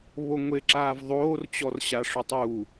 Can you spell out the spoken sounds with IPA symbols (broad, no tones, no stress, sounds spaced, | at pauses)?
β o ŋʷ e ǁ aː v ðˤ oː r t͡ɕ ɔ r ɕ a ʂ o tˤ uː